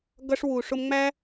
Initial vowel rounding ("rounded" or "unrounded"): unrounded